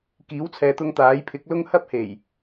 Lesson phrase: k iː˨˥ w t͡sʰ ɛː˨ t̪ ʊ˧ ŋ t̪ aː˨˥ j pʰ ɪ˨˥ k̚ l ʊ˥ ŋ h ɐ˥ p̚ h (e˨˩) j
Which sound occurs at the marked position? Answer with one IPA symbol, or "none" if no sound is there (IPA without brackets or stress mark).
e˨˩